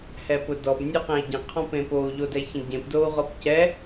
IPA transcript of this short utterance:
h ɛ p ʊ d ɔ b nʲ o q ẽ i̯ ɟ ə̃ qʰ ɔ̃ p ẽ p o u̯ ʎ o d ɛ ç ə̃ ɟ ẽ p d o u̯ ʁ ɔ p c ɛ

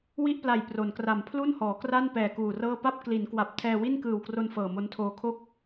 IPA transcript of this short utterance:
w i˥˩ ʔ p l a˨˩ j p r o˩˦ n k r a˨˩ m pʰ l u˥˩ n h ɔː˩˦ k r a˥˩ n p ɛː˨˩ k uː˨˩ r ɤː˥˩ p a˥˩ p̚ k l i˩˦ n k w a˨˩ p̚ tʰ ɛː˧ w i˥˩ n k ɯː˨˩ w k r o˧ n f ɤː˨˩ m o˦˥ n tʰ oː˧ kʰ o˥˩ k̚

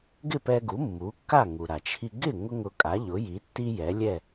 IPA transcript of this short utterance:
ɡ ɪ˥˩ p ɛ˧ ɡ u˩˥ mː u˩˥ kː a˥˩ ŋ u˩ ɾ a˩ t͡ʃʰ i˧ ɡ ɪ˥˩ ŋ ʊ˥ ŋ ʊ˧ kʼ a˩˥ ʎ ʊ˩˥ j i˩˥ tː i˥ j ɛ˩˥ lʲ ɛ˥˩

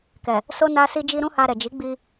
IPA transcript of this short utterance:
k ɛ˨ | s o˦ n a˦ s i˦ d͡ʒ i˦ ɾ ũ˦ h a˧ ɾ ɛ˨ d͡ʒ i˨˦ ɡ͡b i˧

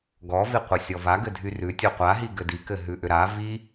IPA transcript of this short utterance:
ɡ ɔ v i qʷ ɘ sʲ ɔ v a ɡ ɘ dʱ y r ʉ tʲ o qʷ a ɦ i ɡ ɘ d i k ɘ ɦ ʉ ʔ ʏ ɾ a v i

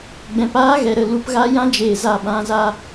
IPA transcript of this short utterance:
ɡ͡b ɛ̃˨ p aː˦ ɣ ɛ˨ ɾ ə˦˨ l u˧ p ɣ a˦ j ã˦ d͡ʒ eː˨ z a˦˨ ɓ ã˨ z a˦

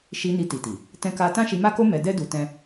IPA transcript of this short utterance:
ʃ i˧ n i˧ t i˨ t i˨ | t ɛ̃˦ k a˦ t ã˦ ʃ i˧ m a˦ k o˦ m ɛ˧ d ɛ˦ d u˧ t ɛ̃˦

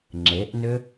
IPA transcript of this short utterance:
ŋ͡ǁ e ʔ n ʏ

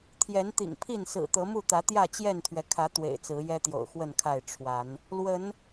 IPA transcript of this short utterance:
t̪ʰ j ɛ˨˦ n t̪ ḭ˨˩ ŋ pʰ i˥˨ n s ɹ̩˨˩ t̪ ɤ˨˦ m u˥˨ t̪ ä˨˦ t̪ j ä˥˨ t͡ɕ j ɛ˥˨ n t̪ʰ ɥ ɛ˩ kʰ ä˨˦ t̪ w ḛ˨˩ ɪ̯ t͡s ɹ̩˨˦ j ɛ˦ t̪ j o̰˨˩ ʊ̯ x w ə˥˨ n kʰ a˥˨ ɪ̯ ʈ͡ʂʰ w a˨˦ n | l w ə˨˦ n

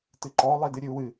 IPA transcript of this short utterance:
t ɨ ǃ ɔ lˠ i d ɨ ɾʲ ɨ u̯ w ɨ

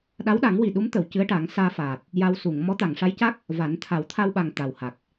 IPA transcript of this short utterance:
ɗ a˧˥ w ɗ a˨˩˦ ŋ w i˨˩ ɗ u˧˥ m t̪ ə˨˩˨ w c ɨ˧˥ ə̯ ʈ a˨˩˦ ŋ s aː˧ f aː˨˩ t̚ | j a˧ w s u˨˩˨ ŋ m ɔ˧˥ t̪ a˨˩˨ ŋ ʂ a˧˥ j c a˦˥ k̚ | v a˨˩˦ n t̪ʰ a˨˩˦ w t̪ʰ a˧ w ɓ a˨˩ ŋ t̪ a˨˩ w h a˨˩ k̚

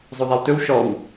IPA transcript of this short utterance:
zˤ o ðˤ a w t ɵ w ʃ ɔ w

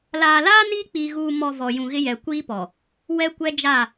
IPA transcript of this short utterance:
l aː˨ l aː˦ n i˦ k͡p iː˨ ɣ uː˨ m ɔ˨ v ɔ˨ j ũ˨ ɣ ɪ˦ j ɛ˨ kʷ iː˦ p ɔ˨ | w ɛ˦ kʷ ɛ˦ d͡ʒ a˦˨

